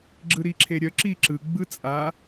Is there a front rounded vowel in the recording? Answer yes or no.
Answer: yes